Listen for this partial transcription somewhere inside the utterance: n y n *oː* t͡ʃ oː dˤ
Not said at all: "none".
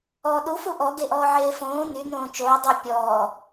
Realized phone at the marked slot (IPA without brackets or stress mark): õː